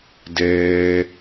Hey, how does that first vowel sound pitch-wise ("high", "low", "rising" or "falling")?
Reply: high